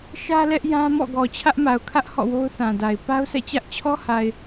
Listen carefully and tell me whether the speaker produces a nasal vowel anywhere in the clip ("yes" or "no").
yes